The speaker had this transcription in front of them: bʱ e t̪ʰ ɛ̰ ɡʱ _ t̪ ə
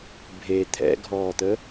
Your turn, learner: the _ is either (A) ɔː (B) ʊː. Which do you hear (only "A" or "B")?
A